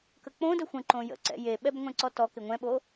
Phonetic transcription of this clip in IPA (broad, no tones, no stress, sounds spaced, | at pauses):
k ə k͡p õ d ə xʷ ə̃ ǃ õ j ə̰ ǀ ɛ̰ j e ɓ ɛ b ŋʷ ɛ̃ ǀ ɔ t ɔ k ɪ ŋʷ ɛ̃ ɓ o